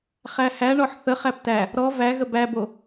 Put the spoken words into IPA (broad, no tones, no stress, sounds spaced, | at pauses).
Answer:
χ æ h æ ɳ ɔ ħ θ ə χ æ p t æ | ɾ ɔ v æ ɣ ə b æ b o